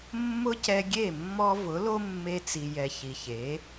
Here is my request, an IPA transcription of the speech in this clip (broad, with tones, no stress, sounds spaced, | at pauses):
mː ʊ˦ c ɛ˧ ɡʲ e˦˨ mː ɔ˧ v ʊ˨˦ l o˦ mː e˧ t͡s i˨ j ɛ˨ ç i˨ ç e˨˦